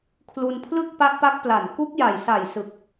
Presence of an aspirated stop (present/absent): present